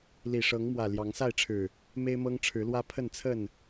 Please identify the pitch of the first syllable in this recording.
low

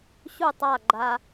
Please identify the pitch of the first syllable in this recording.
falling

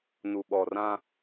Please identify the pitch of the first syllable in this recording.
low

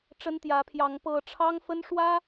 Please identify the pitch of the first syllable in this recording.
high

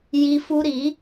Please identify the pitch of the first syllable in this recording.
high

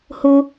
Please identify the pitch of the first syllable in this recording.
high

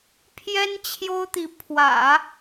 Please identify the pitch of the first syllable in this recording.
high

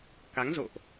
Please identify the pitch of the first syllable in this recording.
rising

